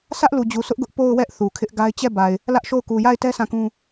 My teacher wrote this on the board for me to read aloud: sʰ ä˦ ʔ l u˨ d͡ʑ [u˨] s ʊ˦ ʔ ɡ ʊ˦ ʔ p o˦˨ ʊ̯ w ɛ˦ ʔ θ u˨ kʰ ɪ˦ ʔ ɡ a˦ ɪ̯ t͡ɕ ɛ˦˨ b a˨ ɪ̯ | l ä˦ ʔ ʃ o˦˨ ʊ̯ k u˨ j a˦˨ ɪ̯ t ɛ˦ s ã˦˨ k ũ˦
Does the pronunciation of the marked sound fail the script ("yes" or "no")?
no